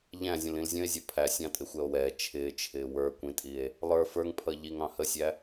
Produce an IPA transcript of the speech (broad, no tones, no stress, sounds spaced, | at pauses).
ʎ æ̃ zʲ ə̃ l ĩ l zʲ ə̃ e̯ zʲ ʌ pʰ æ sʲ ɑ̃ tʼ ɪ xʷ ɛ o̯ w ɛ t͡ʃʰ ɪː t͡ʃʰ ɪː w ə˞ kʷ ĩ tʼ i e̯ | lˠ ə˞ f ə˞ ŋ pʰ ʌ ʎ i ŋ ɑ̃ h ə sʲ æ